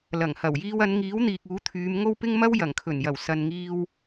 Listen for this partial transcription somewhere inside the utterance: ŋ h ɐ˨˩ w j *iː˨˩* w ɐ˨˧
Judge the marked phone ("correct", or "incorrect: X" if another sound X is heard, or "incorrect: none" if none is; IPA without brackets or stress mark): incorrect: iː˧